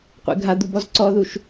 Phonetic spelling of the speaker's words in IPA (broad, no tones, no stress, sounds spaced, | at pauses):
qʷ ḛ ɡʱ a d̪ u b ɔ z ǀ ɔ ð u ʃ